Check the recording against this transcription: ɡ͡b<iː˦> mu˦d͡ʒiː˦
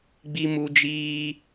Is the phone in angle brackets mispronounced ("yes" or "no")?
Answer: yes